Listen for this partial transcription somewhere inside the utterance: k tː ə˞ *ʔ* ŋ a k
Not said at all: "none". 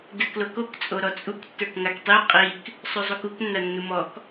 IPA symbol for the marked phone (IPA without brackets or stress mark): k